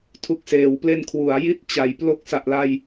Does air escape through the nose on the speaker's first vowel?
no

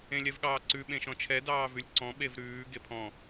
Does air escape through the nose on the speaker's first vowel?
yes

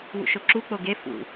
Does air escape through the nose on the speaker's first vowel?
no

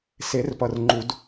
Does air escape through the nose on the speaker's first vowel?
no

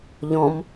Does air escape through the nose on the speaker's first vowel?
yes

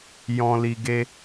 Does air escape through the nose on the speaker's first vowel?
yes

